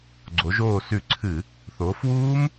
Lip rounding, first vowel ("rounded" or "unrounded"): rounded